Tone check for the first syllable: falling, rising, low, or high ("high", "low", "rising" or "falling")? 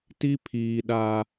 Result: high